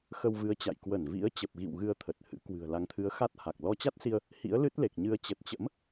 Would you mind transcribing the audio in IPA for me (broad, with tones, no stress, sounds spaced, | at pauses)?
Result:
x ə˧ w v ɨ˨˦ ə̯ t͡ɕ a̰˧˨ j k w ə˧˩ n v ḭ˧˥ ə̯ t͡ɕ ə˨˩ p̚ ɣ ḭ˧˨ w ɣ ɨ˧ ə̯ t̪ʰ ə˨˩ t̚ h ɨ̰˧˥ k w ɨ̤˨˩ ə̯ l a˨˦ ŋ t̪ʰ ɨ˨˦ ə̯ x a˦˥ t̚ h a˨˩ k̚ l ɔ˧ t͡ɕ a˦˥ t̚ s i˧ ə̯ | h ḭ˧˥ ə̯ l ɨ˦˥ t̚ l e˨˩ k̚ ɲ ɨ˧ ə̯ t͡ɕ ə˨˩ t̚ t͡ɕ ə̰˧˥ m